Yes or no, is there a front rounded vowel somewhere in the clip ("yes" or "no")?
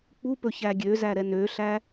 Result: yes